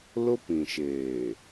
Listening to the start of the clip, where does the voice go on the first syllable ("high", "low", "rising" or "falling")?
high